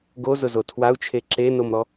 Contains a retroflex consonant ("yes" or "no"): no